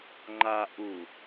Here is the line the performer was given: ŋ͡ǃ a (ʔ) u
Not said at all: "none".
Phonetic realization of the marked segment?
ʔ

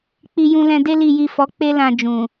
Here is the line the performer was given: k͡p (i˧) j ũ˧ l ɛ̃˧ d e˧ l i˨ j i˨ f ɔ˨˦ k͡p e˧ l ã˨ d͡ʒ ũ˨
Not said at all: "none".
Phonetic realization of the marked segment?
i˧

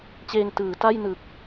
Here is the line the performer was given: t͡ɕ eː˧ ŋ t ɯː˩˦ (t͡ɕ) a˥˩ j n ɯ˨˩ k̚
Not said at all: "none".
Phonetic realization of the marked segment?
t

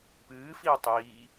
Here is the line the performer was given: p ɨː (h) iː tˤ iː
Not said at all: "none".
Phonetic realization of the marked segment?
f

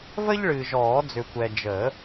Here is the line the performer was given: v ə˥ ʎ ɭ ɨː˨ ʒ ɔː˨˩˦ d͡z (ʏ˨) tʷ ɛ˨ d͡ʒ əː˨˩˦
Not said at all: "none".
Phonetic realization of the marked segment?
ʏ˨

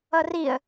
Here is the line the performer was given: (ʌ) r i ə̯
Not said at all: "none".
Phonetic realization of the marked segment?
ʌ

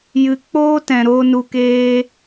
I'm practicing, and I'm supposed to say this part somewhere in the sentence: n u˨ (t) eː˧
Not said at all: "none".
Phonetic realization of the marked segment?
k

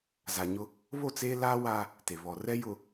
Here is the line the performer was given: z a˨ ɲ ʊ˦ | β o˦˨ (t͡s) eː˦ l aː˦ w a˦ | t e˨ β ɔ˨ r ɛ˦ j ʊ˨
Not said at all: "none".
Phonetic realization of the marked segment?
t͡s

